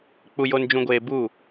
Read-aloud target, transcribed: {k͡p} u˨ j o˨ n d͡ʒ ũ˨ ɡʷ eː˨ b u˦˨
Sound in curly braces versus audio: correct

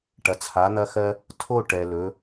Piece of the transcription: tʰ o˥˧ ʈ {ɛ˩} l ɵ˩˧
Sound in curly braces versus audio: correct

